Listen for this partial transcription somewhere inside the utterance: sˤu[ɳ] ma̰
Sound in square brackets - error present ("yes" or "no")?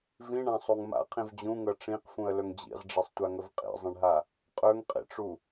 yes